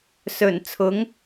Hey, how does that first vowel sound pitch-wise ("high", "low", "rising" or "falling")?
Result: low